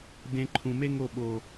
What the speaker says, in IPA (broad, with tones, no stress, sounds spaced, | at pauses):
d ẽ˨ ǃʰ ũ˨ m e˦ ŋ o˦˨ ɓ o˨